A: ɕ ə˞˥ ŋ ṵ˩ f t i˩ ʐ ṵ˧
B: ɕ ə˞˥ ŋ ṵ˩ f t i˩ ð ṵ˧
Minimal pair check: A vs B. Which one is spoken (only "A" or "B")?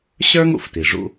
A